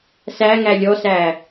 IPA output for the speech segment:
s æ ŋ æ lʲ ɔ s æː

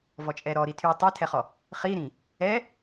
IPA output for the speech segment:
v ɔ t͡ʃʼ ɛ ɾ ɔ ɾ i tʰ y tˤ ɛ tʰ ɛ χ ɔ | χ i ɾ ĩ | ɛ

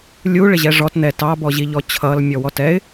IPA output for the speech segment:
lʲ u ɭ ɪ ʑ ɛ ʐ ɔ t n̪ ɛ t ɑ b ɔ ʑ i ʎ ɔ t͡ɕʰ ʌ l mʲ ɔ w ɔ t ɛ ɪ̯

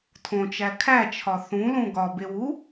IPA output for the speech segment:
tʰ õ t͡ʃ æ kʰ æ t͡ʃʰ ɒ θ ũ l ũ ɡ ɒ b e w u

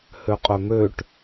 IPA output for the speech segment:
h ø qʼ œ m ø ʈ

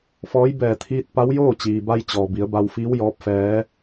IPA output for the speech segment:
f ɔː˧˥ j b ɛː˧˩ t̪ʰ iː˧ t̚ p a˧˥ w j oː˥˨ t͡ɕ iː˩ b a˧ j t͡ɕ ɔː˩ b i˩˧ ə̯ b a˧ w f iː˧˥ w j ɔː˧˥ p̚ f ɛː˧˥

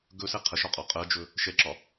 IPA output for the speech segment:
ɡ ɵ s ɛ qʰ ə ʃ ɒ qʼ ɒ qʼ ɜ d͡ʒ ɵ | ʃ ɛ ǁ ɒ

